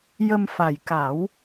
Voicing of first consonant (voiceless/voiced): voiced